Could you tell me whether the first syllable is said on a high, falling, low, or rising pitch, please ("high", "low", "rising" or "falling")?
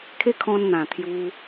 high